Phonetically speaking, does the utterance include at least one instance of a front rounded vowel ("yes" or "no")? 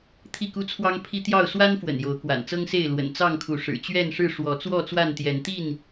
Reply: no